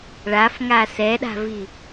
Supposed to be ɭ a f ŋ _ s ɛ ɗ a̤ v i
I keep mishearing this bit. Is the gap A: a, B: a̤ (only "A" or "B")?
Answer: A